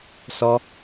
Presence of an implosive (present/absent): absent